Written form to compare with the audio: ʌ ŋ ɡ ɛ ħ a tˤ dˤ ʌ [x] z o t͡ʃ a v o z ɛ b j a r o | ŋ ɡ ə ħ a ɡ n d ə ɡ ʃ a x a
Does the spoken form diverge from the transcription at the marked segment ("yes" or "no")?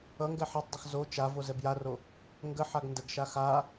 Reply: no